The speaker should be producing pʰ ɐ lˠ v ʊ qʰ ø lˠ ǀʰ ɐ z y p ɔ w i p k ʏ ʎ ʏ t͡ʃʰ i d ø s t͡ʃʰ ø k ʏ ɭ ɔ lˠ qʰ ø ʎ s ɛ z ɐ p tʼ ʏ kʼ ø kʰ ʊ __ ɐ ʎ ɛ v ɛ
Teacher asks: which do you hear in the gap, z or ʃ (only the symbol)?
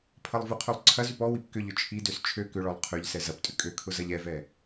z